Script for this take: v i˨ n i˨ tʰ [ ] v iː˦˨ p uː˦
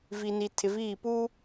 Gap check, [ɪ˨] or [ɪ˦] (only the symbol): ɪ˨